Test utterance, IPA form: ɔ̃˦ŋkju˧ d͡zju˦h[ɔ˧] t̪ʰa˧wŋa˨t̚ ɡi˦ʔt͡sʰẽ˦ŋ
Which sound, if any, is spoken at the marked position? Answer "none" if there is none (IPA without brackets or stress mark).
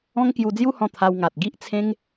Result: ɔ̃˧